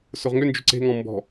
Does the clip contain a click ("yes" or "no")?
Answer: yes